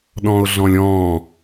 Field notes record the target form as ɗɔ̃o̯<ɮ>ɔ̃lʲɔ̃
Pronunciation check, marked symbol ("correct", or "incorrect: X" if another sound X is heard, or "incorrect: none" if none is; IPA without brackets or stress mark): correct